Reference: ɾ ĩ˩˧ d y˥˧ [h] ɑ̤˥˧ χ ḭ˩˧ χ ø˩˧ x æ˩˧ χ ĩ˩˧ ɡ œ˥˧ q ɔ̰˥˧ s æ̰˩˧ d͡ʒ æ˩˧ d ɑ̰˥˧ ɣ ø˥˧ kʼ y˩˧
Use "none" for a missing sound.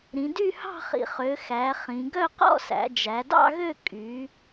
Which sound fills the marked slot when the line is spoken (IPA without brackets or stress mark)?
h